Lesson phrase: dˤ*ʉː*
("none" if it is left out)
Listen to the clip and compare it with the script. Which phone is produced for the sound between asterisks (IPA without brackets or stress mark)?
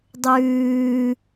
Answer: ʉː